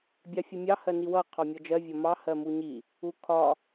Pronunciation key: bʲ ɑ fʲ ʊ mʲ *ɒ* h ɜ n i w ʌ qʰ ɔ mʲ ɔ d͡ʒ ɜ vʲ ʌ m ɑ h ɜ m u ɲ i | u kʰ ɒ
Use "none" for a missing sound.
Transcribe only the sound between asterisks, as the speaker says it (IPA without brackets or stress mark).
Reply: ɑ